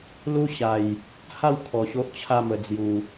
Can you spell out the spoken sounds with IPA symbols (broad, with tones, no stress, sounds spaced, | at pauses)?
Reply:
l u˦ ɕ a˨˩ j | h a˥˧ w kʰ ɔ˨˩ ɕ o˦ ʔ t͡ɕʰ a˥˧ m ə˨˩ d͡z j u˨˩